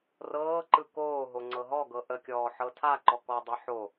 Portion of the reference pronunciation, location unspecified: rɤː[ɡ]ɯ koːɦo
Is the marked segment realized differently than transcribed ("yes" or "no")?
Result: yes